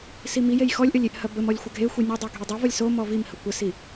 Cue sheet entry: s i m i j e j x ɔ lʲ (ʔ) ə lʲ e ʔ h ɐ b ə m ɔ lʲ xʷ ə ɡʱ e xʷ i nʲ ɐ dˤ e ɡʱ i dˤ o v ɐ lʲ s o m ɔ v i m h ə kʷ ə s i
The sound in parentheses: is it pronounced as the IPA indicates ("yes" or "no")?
yes